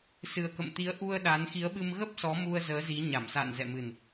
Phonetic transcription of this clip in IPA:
s ɨ˨˩ ə̯ k ə̰˧˨ m t̪ i˨˦ ə̯ ʔ u˧ ə̯ ɗ aː˨˦ n x i˨˦ ə̯ ɓ ɨ˧ m ɣ ə˦˥ p̚ s ɔ˨˦ m u˧ ə̯ z əː˨˦ z i˨˦ ɲ a˧˩ m s a̰ː˧˨ n z ɛ̰˧˨ m ɨ˨˩ n

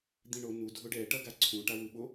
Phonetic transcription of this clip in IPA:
d̪ ĩ ɳ o n u dʱ o ɖ ɛ ʈ ʌ ɡ a ǀʰ ũ ʈ a w ɯ ɓ o

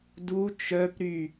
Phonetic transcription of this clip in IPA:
d u t͡ʃ œ p ɾ y

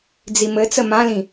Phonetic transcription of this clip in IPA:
d͡z i m ɘ t͡s ə m ã l ĩ

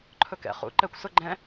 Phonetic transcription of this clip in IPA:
ǃʰ ɵ k ɛ̰ χ ṵ ǃ ɛ kʷ s ʊ ɡ͡ǃ ɛ̃

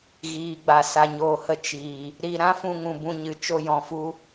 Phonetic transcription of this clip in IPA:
ɣ iː˨ ɡ͡b a˨ s a˨ ɲ oː˨ h ə˧ t͡ʃ iː˨ | ɾ i˧ ɾ ã˦ f ũ˧ ŋ ũ˨ b ũ˧ ɲ ɨ˨ t͡ʃ o˧ j ɔ̃˨ f u˧

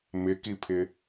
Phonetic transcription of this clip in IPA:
m ɪ k i pʰ ɪ

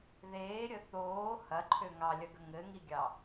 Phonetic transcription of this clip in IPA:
ð eː ɾʲ ə θ oː h ɐ ǃʰ ø ŋ ɑ lʲ ɐ ɡ ə ŋ ɘ ŋ i ɡʲ ɑ

